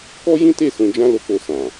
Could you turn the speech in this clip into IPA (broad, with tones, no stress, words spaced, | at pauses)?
kɔ˦jĩ˦te˦˨ sũ˧d͡ʒã˦ lo˧k͡po˧ sã˨